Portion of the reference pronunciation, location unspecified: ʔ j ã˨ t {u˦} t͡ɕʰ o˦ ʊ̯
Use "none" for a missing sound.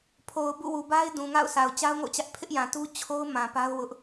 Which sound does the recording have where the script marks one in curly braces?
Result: u˦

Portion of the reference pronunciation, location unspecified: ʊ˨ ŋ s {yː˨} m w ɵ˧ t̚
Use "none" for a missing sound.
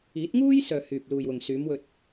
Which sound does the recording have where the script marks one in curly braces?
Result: yː˨˧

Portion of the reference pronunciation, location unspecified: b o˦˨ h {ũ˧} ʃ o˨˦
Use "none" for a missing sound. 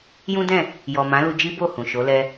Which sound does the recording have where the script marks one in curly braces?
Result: ũ˨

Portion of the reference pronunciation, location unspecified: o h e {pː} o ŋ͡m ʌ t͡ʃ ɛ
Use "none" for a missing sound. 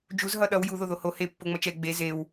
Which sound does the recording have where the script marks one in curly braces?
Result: pː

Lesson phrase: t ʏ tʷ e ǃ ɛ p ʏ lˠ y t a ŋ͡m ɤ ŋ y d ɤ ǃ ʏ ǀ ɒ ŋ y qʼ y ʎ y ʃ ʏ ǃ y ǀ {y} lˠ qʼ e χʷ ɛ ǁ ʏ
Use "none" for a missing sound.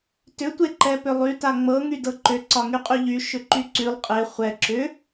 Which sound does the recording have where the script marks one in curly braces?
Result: y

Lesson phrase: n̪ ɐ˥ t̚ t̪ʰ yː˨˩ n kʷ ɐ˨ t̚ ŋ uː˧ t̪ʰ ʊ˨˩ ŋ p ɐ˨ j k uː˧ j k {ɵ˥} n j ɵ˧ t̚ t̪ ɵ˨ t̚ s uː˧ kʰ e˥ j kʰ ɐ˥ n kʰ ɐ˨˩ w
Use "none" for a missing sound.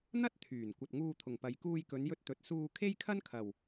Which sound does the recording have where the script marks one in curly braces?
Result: ɵ˨˧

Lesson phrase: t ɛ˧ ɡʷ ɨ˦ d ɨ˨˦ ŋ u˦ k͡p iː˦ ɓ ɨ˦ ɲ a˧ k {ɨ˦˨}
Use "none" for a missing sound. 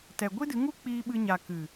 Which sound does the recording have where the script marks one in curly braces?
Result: ɨ˨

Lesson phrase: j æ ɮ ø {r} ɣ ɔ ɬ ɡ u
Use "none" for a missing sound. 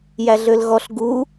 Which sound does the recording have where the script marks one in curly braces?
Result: l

